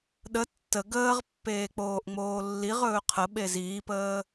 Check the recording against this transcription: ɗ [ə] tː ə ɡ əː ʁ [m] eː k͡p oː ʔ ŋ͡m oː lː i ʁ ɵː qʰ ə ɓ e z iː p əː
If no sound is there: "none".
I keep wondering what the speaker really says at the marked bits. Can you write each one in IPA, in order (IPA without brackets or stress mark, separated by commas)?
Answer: ə, pː